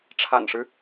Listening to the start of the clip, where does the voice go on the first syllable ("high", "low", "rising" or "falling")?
low